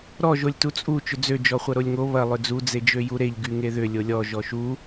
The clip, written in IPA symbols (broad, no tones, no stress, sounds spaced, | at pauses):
ɾ ɔ ʒ o lʲ t u t͡sʼ u t͡ʃ ʏ d͡z ø d͡ʒ ɔ χʷ ɐ ɾ o lʲ ŋ o β ɐ lˠ ʏ d͡z u d͡z e d͡ʒ ø j u ɾ e ʎ ɡ y ŋ e ð ʏ lʲ o lʲ ɔ ʒ ɔ ʃ u